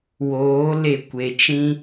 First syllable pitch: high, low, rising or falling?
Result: rising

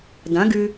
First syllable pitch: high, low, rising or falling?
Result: rising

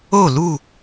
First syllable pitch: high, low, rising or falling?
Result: falling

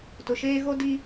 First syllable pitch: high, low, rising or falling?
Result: low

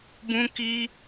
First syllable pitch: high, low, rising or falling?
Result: high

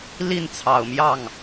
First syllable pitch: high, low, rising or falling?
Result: falling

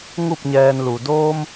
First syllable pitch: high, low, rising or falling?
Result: falling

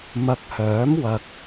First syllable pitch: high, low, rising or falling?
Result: low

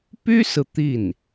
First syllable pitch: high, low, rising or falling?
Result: high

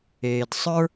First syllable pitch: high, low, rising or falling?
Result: low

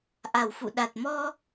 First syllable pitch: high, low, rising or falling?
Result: low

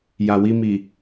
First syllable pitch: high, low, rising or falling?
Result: low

